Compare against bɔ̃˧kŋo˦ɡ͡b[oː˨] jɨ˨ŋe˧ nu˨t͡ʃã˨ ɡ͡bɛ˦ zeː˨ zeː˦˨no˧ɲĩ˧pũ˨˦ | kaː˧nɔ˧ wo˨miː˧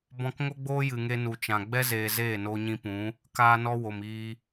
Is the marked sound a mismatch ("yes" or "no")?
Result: yes